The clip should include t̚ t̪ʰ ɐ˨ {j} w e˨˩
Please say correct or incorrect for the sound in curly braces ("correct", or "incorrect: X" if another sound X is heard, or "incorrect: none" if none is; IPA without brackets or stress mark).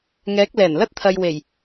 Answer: correct